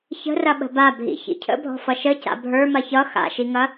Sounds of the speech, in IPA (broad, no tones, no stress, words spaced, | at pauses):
çə̤rɐɓə̤ babʱḭ çḭcʰə̰bʱɔ̤ fʌʃə ca̰bʱə˞ mɐçʌ xa̰ʃiŋɐ